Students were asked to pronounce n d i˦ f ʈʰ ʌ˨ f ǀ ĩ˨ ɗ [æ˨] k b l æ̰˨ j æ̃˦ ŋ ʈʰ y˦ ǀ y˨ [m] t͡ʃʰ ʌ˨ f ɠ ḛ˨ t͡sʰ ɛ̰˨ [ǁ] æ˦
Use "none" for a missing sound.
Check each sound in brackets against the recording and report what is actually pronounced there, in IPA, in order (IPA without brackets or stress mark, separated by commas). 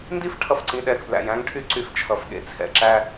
ɛ˨, f, ǁ